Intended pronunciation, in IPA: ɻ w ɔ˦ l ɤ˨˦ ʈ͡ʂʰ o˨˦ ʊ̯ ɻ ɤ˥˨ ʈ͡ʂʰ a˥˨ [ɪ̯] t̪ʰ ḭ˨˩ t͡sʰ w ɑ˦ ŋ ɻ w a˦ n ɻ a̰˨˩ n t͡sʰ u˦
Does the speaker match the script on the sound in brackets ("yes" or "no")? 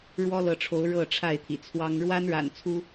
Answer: yes